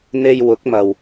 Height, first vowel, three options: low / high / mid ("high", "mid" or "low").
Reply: mid